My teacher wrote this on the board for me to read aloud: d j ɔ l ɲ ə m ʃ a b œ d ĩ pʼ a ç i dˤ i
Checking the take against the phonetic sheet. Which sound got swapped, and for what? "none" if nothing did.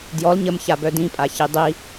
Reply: ʃ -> ç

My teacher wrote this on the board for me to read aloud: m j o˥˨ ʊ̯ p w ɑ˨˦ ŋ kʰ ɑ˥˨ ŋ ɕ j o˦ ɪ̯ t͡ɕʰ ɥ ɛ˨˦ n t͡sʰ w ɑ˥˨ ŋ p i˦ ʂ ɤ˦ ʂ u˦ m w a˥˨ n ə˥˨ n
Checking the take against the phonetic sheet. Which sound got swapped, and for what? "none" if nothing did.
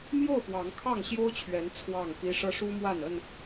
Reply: ɪ̯ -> ʊ̯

